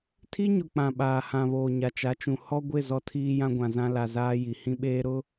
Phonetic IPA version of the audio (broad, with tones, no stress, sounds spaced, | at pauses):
tʰ i˦ ɲ ʊ˨ k͡p ã˨ ɓ aː˨ h ã˨ β oː˨ ɲ a˨ t͡ʃ a˨˦ t͡ʃ ũ˨ h ɔ˦ ɡʷ ɪ˦˨ z ɔ˦ tʰ iː˦ j ã˦ ɡʷ ã˨ z ã˦ l a˨ z aː˦ j i˨ h ĩ˦ ɓ eː˦ ɾ ʊ˦